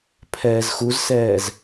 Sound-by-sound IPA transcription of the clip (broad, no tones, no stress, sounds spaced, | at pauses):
pʰ ɛː z x u z s ɛː z